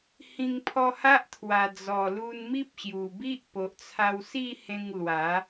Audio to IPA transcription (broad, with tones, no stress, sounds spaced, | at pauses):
h ĩ˧ ŋ pʰ ɔ˧ h a˦ ʔ t̪ʰ w a˨˩ d͡z ɔ˨˩ l u˧ n m i˦ p̚ ɕ j u˨˩ b i˦ ʔ p o˨ ʔ t͡sʰ a˧ w s i˥˧ h ẽ˧ ŋ l w a˨˦